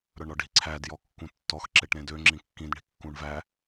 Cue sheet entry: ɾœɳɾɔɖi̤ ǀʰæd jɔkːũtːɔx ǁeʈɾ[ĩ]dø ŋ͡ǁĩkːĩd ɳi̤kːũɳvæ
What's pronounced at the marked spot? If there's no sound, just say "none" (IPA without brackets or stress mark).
ẽ